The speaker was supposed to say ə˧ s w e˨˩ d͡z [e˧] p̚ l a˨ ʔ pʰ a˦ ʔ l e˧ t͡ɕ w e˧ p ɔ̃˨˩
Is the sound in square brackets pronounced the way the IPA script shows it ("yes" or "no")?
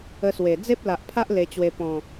no